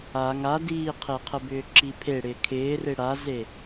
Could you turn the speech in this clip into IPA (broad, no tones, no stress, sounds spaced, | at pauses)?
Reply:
a ŋ a d iː qʰ e qʰ ə b ʏː ǁ i pʰ e ɽ ɪː kʰ ɪː r e ɽ a z e